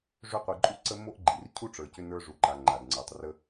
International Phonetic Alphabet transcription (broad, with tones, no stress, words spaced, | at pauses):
ʐʏ˧qʷi˩ǃʼu˧ǀə˧ mo˥ʔɡ͡ǃi˩r cʰu˥ʈ͡ʂə˞˩cʏ˧ nə˞˧ʐu˩ǃa˩ ŋ͡ǃa˩dŋ͡ǀə˞˩tˤrə˧